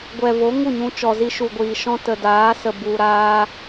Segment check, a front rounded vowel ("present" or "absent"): absent